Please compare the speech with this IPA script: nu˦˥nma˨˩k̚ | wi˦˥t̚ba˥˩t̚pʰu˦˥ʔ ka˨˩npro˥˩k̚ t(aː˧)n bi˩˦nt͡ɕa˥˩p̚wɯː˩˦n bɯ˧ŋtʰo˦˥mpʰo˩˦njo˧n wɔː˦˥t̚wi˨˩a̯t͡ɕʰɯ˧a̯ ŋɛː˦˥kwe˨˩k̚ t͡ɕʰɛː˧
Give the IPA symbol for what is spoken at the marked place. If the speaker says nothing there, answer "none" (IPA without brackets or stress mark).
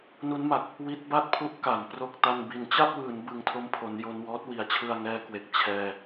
a˧